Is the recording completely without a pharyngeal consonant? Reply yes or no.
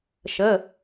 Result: yes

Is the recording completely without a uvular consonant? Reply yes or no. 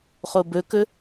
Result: no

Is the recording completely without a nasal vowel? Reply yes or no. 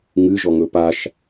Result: yes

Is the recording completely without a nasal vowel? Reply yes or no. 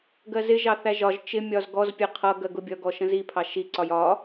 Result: no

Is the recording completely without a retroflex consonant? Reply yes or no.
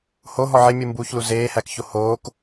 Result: yes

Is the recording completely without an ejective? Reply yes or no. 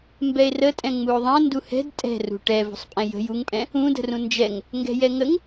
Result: no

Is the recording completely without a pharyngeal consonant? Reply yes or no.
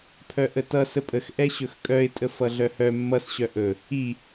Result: yes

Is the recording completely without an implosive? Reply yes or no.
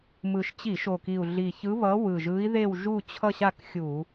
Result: yes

